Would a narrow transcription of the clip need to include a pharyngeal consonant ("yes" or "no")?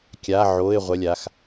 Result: yes